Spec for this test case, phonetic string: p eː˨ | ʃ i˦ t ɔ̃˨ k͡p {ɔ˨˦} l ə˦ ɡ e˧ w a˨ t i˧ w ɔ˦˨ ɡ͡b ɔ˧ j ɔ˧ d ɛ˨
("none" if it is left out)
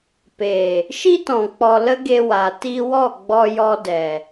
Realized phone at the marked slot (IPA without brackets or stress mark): ɔ˨